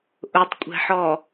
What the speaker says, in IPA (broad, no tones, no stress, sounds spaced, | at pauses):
ʔ ʊ tˤ kʷʼ ɛ̤ ħ ɔ